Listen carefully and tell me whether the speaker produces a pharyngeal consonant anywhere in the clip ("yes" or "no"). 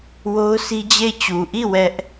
no